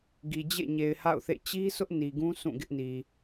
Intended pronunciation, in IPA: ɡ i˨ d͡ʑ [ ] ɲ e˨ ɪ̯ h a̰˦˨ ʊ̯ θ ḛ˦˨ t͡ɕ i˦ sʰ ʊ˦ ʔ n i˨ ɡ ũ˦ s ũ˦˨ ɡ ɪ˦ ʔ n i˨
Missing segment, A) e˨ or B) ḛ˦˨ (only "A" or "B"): B